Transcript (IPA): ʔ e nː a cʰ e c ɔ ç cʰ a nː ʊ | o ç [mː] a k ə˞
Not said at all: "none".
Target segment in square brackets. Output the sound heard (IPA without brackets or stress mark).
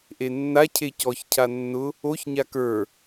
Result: ɲ